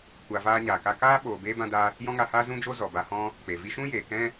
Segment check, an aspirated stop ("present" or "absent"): absent